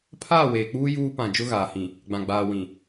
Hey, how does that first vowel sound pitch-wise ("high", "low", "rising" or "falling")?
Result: falling